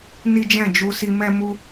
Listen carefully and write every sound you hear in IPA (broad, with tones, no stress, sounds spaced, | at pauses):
n i˦ d͡ʒ ɛ̃˦˨ d͡ʒ u˧ s i˧ m ɛ˦ m u˦